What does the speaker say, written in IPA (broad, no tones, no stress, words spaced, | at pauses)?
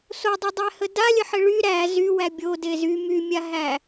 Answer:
sodˤydˤæhə dalʲəħɘ ɭy ɾæ zywæ bʲode zy mymʲaɦæ